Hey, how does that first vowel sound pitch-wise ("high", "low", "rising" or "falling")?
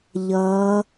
rising